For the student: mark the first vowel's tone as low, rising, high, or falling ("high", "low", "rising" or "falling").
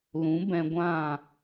rising